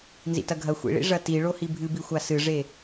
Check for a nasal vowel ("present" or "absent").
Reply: absent